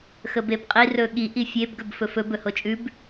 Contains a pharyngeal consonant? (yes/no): no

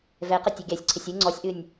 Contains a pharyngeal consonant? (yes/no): no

